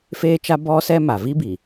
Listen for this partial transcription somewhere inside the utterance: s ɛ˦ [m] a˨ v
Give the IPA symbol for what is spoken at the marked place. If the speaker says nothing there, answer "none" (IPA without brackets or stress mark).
m